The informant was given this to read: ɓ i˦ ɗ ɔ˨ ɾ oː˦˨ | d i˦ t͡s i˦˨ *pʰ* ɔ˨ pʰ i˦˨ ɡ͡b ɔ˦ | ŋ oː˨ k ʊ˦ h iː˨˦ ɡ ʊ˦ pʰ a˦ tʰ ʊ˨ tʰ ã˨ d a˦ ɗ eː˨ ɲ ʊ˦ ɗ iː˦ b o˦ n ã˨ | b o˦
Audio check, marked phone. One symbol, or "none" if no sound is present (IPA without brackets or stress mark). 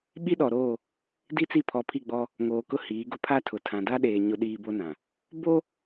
pʰ